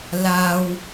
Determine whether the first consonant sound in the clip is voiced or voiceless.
voiced